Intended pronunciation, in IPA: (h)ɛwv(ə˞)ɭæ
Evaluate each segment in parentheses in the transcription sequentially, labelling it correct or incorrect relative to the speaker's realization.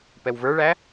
incorrect: p, correct

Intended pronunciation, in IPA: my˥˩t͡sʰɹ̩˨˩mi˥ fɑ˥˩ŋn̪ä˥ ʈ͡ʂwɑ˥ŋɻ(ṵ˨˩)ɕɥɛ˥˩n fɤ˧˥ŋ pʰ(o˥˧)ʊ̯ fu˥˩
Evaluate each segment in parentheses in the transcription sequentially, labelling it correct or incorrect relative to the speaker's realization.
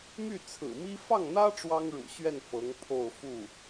correct, correct

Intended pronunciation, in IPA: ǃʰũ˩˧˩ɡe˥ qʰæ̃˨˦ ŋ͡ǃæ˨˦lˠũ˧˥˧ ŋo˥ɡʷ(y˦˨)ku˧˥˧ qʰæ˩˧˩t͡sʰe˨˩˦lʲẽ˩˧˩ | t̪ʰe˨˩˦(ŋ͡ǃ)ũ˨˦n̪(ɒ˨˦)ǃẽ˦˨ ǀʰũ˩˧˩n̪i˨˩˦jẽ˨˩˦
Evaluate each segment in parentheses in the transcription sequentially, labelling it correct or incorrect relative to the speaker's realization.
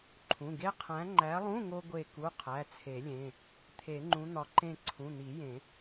incorrect: e˦˨, correct, correct

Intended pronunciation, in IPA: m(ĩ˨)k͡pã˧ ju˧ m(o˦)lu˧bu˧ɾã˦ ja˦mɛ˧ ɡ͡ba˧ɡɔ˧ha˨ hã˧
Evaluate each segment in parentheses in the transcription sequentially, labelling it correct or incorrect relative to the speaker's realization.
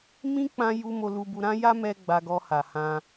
incorrect: ĩ˦, incorrect: o˧

